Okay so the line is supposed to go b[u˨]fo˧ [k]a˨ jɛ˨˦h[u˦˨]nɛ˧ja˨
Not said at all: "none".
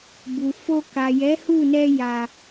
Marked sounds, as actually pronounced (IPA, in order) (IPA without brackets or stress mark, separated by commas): u˨, k, u˦˨